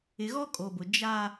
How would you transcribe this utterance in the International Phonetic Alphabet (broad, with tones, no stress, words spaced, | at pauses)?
ɪ˨ɣɔ˦kʼo˨bʊ˨ d͡ʒa˦